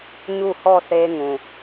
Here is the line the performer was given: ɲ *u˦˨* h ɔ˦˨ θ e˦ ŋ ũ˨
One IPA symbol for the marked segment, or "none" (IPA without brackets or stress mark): u˦˨